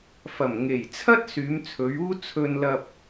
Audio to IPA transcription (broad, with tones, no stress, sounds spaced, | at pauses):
f ɐ˨˩ m ŋ e˨˩ j t͡sʰ ɐ˥ t̚ s yː˨˧ m t͡sʰ ɵ˨˧ ɥ uː˥ t͡sʰ ɵ˧ n l ɐ˧ p̚